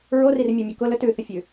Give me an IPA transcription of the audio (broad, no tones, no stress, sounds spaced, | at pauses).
ɹ o r i r mʲ ʉ mʲ o k ʊ l ɵ t ʉ θ ə fʲ ʉ